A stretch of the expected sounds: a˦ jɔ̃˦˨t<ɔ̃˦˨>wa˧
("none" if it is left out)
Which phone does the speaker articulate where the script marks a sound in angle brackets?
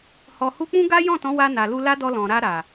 ɔ̃˨˦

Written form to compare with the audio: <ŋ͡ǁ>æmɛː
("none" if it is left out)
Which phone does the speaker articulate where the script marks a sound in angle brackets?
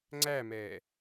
ŋ͡ǀ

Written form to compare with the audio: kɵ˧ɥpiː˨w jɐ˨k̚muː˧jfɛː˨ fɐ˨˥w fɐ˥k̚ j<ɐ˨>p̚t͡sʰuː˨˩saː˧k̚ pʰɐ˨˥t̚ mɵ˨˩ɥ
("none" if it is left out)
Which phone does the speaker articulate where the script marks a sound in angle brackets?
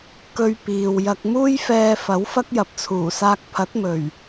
ɐ˨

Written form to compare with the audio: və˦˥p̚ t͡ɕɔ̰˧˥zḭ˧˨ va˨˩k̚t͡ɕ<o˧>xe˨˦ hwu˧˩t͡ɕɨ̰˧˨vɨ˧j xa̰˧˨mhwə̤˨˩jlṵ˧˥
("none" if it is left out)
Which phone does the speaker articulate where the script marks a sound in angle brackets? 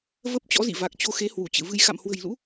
o˧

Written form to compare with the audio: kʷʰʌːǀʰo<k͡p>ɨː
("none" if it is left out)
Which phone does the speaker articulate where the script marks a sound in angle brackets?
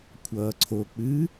k͡p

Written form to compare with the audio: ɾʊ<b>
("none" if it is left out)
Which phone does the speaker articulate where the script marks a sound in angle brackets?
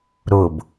b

